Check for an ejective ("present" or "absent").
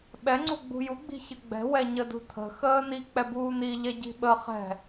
absent